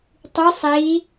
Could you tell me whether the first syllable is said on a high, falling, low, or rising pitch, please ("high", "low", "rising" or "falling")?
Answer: rising